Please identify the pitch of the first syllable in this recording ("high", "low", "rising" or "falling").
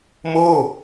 falling